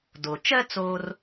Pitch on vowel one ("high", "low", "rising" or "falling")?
low